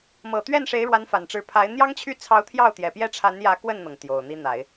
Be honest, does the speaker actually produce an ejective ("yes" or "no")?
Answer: no